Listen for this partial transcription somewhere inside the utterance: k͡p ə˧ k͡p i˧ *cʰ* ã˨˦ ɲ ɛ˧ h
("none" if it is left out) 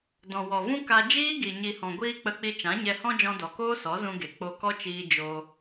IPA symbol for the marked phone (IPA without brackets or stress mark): t͡ʃ